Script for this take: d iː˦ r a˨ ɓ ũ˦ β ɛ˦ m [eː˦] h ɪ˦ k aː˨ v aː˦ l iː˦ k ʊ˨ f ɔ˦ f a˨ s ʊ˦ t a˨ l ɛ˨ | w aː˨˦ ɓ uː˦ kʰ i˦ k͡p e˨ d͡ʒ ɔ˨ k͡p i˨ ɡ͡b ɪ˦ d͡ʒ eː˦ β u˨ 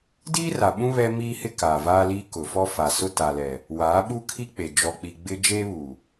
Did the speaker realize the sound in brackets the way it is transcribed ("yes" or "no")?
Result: no